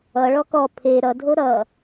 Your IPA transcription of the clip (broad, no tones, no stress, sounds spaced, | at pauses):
ʌ ɭ ɔ k ɔ pʰ e ɾ ʌ dʱ o ɾ ʌ